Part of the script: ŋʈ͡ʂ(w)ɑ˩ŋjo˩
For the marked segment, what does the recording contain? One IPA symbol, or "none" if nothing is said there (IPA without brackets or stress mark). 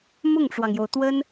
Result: w